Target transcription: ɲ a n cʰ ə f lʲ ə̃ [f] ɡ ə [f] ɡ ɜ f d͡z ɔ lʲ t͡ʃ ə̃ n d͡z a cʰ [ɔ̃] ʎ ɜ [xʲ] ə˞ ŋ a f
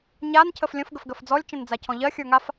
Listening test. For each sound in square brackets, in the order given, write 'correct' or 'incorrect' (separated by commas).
correct, correct, correct, correct